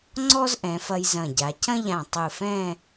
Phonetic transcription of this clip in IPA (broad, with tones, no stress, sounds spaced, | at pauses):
ŋ͡ǀ ɔ˥ z ʔ ɛ̃˩˧ f ɐ˧ j z ɐ̃˧˩ ɟ a˩˧ c ɐ̃˥ ʎ ã˧˩ tˤ ɨ˧˩ f ɛ̃˥˧